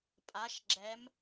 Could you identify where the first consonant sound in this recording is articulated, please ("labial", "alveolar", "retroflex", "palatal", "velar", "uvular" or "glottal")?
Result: labial